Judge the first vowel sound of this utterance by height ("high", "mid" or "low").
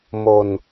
mid